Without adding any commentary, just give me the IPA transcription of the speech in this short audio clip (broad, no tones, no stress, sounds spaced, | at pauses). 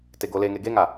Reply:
t e ɡ o l e ŋ e ɡ e ŋ a